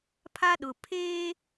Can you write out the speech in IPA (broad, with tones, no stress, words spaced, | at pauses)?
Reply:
pʰa˦ɗʊ˨ pʰeː˦